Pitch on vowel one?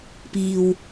low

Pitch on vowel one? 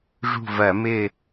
falling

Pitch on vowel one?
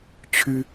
high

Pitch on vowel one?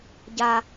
high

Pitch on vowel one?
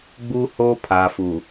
high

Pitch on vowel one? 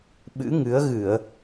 rising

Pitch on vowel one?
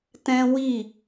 high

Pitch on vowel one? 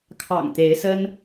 low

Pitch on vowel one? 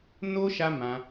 high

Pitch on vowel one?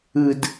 low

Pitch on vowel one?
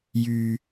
low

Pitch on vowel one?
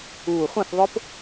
low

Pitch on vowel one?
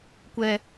high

